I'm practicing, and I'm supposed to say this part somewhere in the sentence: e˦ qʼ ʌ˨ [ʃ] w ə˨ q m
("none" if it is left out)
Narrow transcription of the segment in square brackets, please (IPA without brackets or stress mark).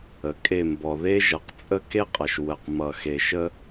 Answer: ʃ